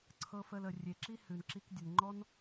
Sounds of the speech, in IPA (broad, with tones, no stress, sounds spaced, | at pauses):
ǀʰ ɤ˦ f ə˧ l ə˨ rʲ e˨ ǁ i˦ h ʉ˨ n ǁ i˧ k dʲ ə˨ n ŋ͡ǃ ɔ˦ n